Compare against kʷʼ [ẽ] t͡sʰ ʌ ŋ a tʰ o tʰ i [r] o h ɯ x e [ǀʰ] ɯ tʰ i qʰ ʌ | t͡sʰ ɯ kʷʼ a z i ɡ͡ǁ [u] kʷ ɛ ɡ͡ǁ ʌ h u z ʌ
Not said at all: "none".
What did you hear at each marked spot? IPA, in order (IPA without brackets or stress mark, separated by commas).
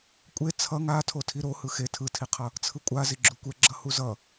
e, ɾ, tʰ, u